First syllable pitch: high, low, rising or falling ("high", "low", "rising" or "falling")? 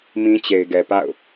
high